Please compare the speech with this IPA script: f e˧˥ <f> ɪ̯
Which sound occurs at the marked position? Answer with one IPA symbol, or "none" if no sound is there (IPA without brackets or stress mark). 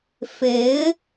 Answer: none